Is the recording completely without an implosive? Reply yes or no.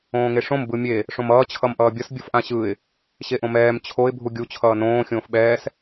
no